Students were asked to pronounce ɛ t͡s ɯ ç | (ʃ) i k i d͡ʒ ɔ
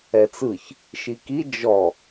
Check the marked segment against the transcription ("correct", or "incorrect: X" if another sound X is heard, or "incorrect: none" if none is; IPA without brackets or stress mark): correct